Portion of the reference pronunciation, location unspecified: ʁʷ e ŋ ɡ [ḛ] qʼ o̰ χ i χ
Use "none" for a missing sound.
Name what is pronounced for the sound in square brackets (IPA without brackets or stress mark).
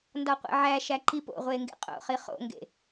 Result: ḛ